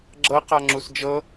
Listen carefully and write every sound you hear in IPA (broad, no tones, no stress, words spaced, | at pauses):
ɡ͡ǁɤ qaŋ͡ǁusd͡ʒɤ